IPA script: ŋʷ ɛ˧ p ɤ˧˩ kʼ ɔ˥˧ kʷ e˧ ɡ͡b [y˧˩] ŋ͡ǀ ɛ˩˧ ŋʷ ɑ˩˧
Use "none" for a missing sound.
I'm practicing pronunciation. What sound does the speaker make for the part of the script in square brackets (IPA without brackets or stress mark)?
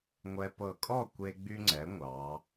y˧